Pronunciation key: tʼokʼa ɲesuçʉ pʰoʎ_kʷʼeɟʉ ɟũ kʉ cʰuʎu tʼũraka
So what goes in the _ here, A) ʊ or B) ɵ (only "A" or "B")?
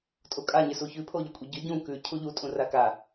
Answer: B